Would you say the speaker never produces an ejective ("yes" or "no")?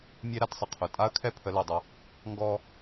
no